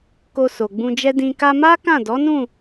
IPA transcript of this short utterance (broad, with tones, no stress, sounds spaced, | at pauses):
k o˧ s o˨ ɡ͡b ũ˧ d͡ʒ ɛ˦ d ĩ˧ k a˧ m a˦ k ã˦˨ d ɔ˨˦ n ũ˦˨